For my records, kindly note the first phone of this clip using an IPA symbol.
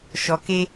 ʃ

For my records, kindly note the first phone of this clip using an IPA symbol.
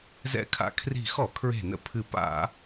z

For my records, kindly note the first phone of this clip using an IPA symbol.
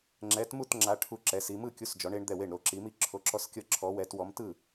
ŋ͡ǁ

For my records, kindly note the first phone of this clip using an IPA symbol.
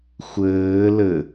xʷ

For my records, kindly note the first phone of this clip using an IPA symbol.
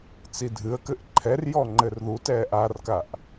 t͡s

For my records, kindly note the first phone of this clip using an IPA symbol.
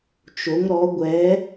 t͡ʃ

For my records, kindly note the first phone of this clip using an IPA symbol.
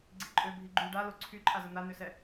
ɡ͡ǀ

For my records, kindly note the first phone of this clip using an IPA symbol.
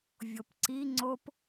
vʲ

